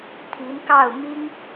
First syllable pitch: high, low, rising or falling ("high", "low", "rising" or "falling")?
rising